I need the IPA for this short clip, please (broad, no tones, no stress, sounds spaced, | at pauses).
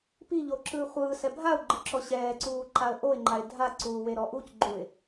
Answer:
p i ʎ o ǁ ɯː χʷ ɯː s ɛ bʱ a ʊ̯ ɡ͡ǃ ɯ ǁ ɔ ɕ ɛː ǀ uː ǃ a ə̯ ʔ o ɪ̯ ŋ͡ǃ a ɪ̯ dʱ a ǀ uː w e ɾ ɔ ʔ u c ɡ͡ǃ u ɪ̯